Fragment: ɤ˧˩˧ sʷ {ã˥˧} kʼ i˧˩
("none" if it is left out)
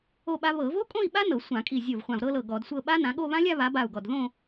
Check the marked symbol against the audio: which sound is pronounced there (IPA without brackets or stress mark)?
ã˧˩˧